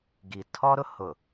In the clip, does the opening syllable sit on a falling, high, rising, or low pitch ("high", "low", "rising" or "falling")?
low